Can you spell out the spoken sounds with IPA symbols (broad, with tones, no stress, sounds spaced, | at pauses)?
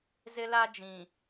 z ɪ˦ l a˦ d͡ʒ ĩ˨